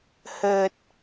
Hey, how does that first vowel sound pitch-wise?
low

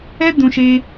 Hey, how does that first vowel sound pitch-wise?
high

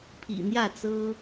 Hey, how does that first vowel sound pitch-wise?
low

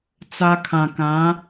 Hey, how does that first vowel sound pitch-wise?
high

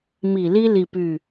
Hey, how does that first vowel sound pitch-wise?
low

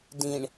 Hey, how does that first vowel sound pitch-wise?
low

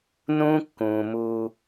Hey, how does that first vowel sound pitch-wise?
high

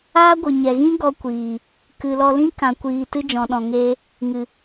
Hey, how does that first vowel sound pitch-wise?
high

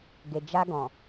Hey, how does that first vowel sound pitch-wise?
low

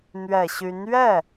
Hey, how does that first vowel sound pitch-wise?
low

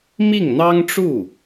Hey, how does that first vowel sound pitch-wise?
falling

